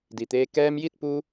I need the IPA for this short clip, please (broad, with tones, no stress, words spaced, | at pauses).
di˩t̪eː˧ kɛː˧mji˥˨t̚ pu˧